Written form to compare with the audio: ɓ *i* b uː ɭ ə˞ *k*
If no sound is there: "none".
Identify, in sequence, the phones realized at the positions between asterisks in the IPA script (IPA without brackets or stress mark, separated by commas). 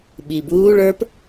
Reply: i, p